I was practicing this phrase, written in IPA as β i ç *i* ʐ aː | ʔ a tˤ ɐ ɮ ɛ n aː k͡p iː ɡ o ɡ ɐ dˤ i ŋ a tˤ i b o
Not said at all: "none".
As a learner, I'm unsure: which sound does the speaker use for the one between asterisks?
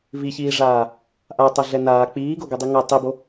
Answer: iː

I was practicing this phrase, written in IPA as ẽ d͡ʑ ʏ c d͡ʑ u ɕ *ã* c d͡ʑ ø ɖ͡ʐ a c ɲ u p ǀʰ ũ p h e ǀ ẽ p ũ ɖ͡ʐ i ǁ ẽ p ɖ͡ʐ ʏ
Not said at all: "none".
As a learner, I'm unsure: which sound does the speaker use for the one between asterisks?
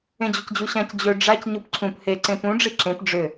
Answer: ã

